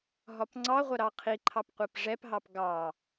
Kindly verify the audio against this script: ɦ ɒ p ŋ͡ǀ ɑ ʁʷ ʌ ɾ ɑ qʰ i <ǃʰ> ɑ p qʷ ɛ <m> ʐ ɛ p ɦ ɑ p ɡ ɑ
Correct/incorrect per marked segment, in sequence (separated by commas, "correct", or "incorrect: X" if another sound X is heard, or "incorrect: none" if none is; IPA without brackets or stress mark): correct, incorrect: p